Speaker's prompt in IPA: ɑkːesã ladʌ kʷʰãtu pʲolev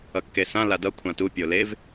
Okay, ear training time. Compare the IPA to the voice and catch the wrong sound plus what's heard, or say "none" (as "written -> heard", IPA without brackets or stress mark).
ɑ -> ʌ